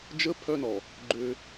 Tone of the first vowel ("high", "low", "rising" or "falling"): high